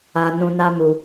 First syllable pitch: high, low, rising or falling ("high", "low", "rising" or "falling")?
low